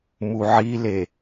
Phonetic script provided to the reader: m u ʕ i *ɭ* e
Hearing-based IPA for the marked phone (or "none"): l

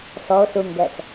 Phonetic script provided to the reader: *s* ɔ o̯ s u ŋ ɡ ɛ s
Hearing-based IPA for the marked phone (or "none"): s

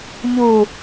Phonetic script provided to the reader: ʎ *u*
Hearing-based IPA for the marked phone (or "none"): u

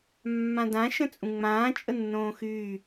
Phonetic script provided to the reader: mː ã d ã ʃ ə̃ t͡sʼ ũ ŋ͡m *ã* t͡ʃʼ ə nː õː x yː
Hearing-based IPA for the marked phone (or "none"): ãː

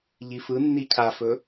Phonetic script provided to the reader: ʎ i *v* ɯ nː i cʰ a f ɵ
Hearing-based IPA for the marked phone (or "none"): f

